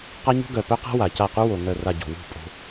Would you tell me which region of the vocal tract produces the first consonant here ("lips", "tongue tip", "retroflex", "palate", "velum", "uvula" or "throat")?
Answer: uvula